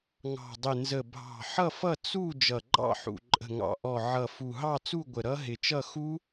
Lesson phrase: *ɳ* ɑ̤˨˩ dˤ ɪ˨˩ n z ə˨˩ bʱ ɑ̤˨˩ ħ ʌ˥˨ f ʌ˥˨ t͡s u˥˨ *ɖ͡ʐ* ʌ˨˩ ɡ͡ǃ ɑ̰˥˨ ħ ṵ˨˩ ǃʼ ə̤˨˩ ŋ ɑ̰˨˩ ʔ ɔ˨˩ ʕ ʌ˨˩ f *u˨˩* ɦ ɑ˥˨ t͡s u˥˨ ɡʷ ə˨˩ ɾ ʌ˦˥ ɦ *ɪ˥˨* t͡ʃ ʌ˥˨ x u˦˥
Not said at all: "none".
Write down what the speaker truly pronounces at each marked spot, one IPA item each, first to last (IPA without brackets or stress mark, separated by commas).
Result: ŋ, d͡ʒ, u˨˩, ɪ˨˩